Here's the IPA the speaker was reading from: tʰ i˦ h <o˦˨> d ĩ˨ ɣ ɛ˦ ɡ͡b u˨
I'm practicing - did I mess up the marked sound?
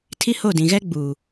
no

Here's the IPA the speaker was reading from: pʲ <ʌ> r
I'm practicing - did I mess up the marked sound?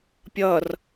no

